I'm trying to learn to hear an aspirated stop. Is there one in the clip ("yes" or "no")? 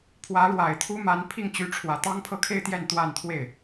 yes